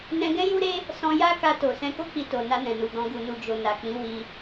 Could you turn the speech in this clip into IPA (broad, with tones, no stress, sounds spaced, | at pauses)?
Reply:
n ɛ̃˧ ɡ ɛ̃˦ j u˦ ɾ e˦ | s ɔ̃˧ j a˦ k a˧ t o˨ s ɛ̃˧ k o˦ k͡p i˧ t o˨ n a˧ n ɛ̃˨ n u˨ ɡ ɔ̃˧ ɡ u˨ n u˨ d͡ʒ o˨ n a˨ k͡p ĩ˨˦ w i˧